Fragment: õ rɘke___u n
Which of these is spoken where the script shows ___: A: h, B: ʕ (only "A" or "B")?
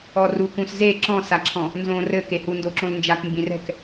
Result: A